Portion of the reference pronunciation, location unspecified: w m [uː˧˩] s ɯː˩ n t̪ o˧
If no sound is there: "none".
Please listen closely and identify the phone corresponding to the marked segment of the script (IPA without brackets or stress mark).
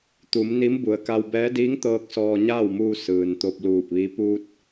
uː˧